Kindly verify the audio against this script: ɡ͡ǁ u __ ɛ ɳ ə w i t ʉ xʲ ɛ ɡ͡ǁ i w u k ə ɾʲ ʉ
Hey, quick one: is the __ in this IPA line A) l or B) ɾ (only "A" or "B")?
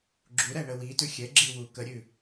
B